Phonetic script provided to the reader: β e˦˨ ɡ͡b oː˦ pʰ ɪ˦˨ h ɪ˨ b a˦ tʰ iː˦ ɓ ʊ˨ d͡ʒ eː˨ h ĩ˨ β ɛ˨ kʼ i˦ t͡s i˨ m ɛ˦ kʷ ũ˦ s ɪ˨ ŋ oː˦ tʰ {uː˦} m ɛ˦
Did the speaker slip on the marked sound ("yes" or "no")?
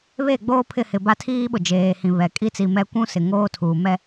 yes